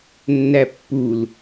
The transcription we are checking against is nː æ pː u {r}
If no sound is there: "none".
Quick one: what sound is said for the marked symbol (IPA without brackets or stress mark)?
l